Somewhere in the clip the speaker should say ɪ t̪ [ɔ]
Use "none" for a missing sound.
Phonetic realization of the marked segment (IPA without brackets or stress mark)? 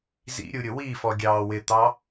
ɑ